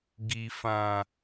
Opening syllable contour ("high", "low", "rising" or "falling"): low